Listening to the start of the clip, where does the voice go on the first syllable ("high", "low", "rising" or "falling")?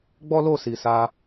high